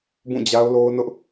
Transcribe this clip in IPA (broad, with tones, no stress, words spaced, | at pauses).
bũ˦˨d͡ʑa˦ʊ̯lo˦ʊ̯nʊ˦ʔ